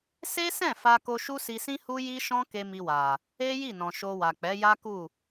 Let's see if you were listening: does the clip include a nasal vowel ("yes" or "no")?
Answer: yes